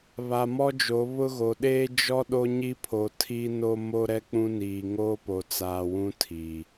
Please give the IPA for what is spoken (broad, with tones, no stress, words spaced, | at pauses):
βa˨mɔ˦d͡ʒo˨˦ βʊ˦ɣo˨ ɗeː˦ d͡ʒɔ˦ɗo˦ɲi˦pʰo˨ tʰi˦no˦ mo˦ɾɛ˦k͡pũ˦niː˨ ŋoː˦po˨ t͡saː˨wũ˦ tʰiː˨